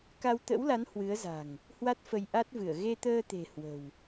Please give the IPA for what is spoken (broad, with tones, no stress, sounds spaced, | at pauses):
k a˧ w t̪ ə̰˧˥ w l a˨˦ n h w ɨ˨˦ ə̯ z a̤˨˩ ŋ | h w a˦˥ t̚ f ə˧ j ʔ a˦˥ t̚ v ɨ˧˩ ə̯ ɣ e˧ t̪ əː˧ t̪ e̤˨˩ h w ə̤˨˩ w